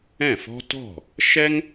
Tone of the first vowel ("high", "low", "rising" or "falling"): falling